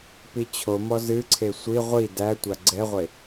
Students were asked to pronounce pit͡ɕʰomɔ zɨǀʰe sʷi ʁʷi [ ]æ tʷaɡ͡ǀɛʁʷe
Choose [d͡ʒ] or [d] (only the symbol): d